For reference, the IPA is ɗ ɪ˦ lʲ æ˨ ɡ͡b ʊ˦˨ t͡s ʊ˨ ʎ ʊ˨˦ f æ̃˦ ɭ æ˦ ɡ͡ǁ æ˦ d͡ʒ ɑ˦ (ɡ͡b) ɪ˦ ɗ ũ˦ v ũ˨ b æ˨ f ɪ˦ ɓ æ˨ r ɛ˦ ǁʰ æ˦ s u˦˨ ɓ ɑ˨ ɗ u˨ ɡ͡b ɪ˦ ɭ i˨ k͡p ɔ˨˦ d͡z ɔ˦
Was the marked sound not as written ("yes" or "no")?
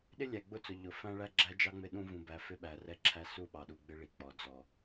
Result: yes